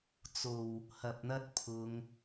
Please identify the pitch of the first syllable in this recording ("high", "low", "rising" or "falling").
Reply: low